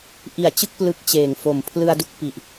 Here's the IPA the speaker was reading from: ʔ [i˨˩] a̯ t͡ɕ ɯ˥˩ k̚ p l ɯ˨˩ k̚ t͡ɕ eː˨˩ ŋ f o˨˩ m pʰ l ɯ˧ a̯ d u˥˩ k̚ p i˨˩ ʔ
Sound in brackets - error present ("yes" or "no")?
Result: no